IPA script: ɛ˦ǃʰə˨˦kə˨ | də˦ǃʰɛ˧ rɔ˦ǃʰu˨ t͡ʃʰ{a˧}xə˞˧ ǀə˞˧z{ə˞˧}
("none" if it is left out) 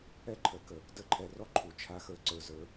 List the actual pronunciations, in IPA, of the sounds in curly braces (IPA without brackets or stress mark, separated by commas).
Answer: a˧, ə˞˧